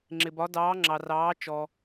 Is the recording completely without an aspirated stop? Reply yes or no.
yes